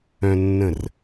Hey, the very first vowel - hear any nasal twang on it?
yes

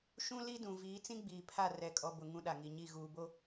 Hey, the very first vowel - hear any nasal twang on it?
yes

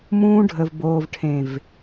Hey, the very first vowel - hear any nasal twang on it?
yes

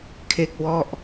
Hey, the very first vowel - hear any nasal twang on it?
no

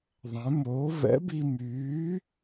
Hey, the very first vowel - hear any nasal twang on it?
yes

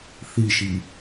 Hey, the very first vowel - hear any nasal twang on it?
no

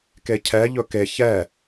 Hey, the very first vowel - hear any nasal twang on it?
no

